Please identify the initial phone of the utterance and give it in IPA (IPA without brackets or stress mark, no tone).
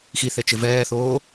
x